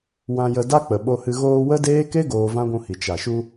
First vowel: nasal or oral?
nasal